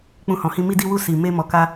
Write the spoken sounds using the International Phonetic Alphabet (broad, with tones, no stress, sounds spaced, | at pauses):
k͡p ũ˧ h ɔ̃˨ h ĩ˧ m i˧ d i˧ w u˧ s i˨ m e˧ m ɔ˨ k a˧